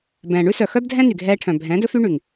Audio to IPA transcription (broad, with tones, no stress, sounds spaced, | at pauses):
b ɛ̃ː˨ ɳ ʉ˦ s œ˨ x œ˦ b dʱ ɛ̃˦ n y˨ ɡʱ ɛː˧ ʈʰ œ̃˨ bʱ ɛ̃ː˨˦ d ɵ˦ f y˦ ɳ y˨ ŋ